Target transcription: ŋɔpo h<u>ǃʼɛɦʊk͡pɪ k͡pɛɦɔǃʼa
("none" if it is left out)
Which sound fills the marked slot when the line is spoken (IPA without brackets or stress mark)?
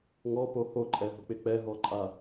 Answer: o